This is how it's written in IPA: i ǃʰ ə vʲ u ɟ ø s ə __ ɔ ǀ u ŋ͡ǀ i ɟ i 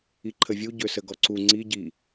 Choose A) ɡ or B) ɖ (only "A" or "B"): A